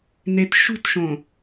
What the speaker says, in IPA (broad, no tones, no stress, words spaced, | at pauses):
net ʃṳtʃõ